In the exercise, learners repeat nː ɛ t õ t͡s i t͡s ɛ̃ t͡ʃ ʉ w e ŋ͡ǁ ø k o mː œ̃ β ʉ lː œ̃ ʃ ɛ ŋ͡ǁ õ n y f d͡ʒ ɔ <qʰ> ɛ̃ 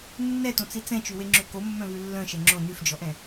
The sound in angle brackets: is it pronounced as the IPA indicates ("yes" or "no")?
no